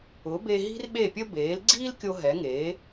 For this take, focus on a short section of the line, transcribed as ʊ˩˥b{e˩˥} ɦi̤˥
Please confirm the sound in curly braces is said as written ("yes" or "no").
no